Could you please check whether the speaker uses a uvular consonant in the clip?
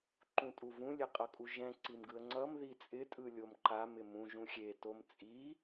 yes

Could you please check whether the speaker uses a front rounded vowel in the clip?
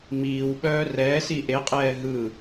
yes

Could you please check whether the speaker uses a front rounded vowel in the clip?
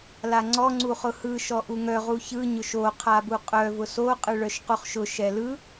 yes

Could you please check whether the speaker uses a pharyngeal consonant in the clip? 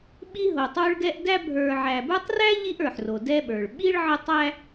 yes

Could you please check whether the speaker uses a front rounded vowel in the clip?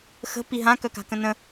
yes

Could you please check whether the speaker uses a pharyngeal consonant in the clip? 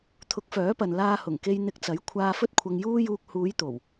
no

